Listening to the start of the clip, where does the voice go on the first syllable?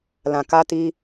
low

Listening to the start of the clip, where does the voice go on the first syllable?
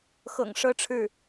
low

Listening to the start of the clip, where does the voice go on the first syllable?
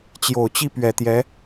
low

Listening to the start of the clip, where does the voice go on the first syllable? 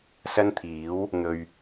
high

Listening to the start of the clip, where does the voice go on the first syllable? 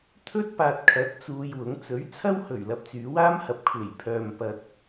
high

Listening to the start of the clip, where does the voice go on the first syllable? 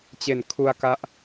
low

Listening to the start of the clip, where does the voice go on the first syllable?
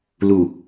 low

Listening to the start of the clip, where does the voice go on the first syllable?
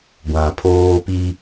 low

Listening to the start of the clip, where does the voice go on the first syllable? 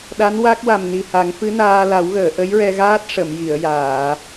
rising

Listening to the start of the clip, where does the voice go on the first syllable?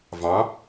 rising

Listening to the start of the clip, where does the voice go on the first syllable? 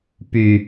low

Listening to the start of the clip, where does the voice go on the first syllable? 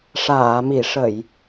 low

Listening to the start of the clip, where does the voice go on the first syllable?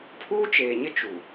high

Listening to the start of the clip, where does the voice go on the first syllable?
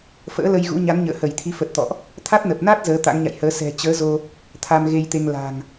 rising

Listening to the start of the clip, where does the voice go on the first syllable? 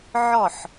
falling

